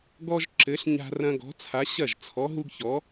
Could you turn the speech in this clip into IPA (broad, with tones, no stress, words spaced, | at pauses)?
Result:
ɡɔ˦ʒ ǁɘ˨˥ɬɲa̤˦rɐ̃˦ ɡɔ̤˨˥t͡sʰa˨˥ ɕɐ˥˩ʒt͡sʰɔ˨˥ɦu˦ɡçɔ˨˥